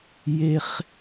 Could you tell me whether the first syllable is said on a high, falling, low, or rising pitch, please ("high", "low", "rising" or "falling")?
high